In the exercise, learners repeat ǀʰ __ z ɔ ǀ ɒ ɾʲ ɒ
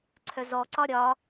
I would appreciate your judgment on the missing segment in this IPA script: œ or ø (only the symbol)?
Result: œ